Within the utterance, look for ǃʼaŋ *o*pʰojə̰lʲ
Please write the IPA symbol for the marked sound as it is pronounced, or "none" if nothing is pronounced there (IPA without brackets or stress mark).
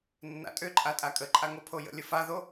o